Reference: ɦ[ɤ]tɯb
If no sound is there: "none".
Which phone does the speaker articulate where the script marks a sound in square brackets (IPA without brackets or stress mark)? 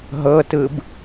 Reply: ɤ